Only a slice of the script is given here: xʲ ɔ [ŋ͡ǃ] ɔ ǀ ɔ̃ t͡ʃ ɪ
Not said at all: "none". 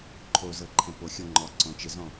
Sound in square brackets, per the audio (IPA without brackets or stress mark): ŋ͡ǃ